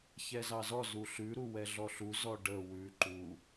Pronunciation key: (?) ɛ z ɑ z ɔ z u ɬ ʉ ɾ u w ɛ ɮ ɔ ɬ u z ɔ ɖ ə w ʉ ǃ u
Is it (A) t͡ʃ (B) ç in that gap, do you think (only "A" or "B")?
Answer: B